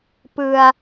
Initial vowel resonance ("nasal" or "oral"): oral